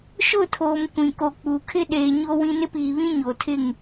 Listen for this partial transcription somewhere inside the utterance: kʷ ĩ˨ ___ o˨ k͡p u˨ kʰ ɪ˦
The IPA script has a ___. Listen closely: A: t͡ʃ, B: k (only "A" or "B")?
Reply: B